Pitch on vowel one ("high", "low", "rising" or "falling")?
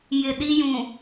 low